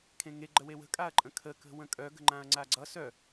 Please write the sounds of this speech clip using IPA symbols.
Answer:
kʰ ẽ ŋ e ɡ͡ǃ ə w e w ə̤ kʼ a ɐ̯ ǃʼ ə̃ kʰ ə k ə̤ w ə̃ kʼ œ ɡ ə̤ ŋ͡ǃ ã ɐ̯ ŋ͡ǀ a ɡ͡ǀ ʌ s œ

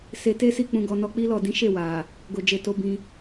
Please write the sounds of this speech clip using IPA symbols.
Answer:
s e˧ t e˦ s i˦˨ k͡p ũ˧ ɡ ɔ˧ n ɔ˧ k͡p i˦ l ɔ˦˨ d ĩ˨˦ ʃ e˦˨ w a˨ | ɡ o˨ d͡ʒ e˨ t o˨˦ b ĩ˧

